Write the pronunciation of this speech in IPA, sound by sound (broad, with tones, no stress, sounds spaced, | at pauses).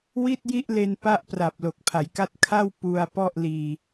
w i˥˩ t̚ j i˥˩ ʔ l e˧ n p a˥˩ ʔ p r a˨˩ p̚ l o˨˩ k̚ pʰ a˩˦ j k a˥˩ t̚ kʰ a˥˩ w p u˧ a̯ p ɔ˥˩ ʔ l iː˧